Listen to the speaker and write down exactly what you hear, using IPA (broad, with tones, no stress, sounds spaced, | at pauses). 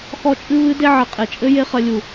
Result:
x ɔ˦ t͡ʃʼ ɨ˦ β ɨ˦ d e˦ ʕ ɘ˨ qʼ e˨ t͡ʃʼ ɘ˦ j e˦ χ ɐ˧ lʲ u˨